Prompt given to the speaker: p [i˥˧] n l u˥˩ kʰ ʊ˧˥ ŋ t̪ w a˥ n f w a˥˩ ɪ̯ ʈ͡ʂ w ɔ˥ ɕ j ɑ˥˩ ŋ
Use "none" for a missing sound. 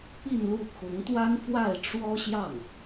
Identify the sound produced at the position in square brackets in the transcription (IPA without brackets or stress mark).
i˥˧